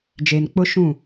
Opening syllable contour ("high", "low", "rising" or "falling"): low